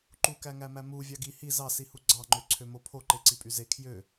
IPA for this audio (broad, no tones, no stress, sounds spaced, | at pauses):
ǃ u k æ ŋ æ m æ m u vʲ ɑ ɡ i h i z ɑ s i h u ɡ͡ǀ ɑ ŋ͡ǃ ø ǀʰ ø m o pʰ o ǃ e ǀ i pʼ y z e kʰ j ø